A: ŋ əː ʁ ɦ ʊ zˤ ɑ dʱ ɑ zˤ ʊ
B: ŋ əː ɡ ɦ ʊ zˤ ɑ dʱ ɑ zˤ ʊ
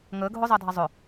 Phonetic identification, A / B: B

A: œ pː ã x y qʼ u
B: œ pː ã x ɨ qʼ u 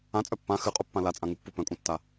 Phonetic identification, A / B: B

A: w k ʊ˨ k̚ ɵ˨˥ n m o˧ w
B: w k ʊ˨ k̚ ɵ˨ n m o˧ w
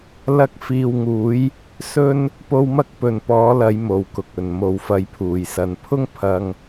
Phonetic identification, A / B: B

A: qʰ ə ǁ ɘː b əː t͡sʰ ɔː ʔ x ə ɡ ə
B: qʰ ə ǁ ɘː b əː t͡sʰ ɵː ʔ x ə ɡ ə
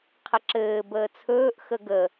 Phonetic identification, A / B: B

